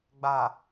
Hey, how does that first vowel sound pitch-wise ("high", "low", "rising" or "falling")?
low